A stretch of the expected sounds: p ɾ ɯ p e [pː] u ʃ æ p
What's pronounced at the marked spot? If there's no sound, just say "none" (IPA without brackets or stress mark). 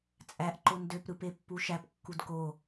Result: pː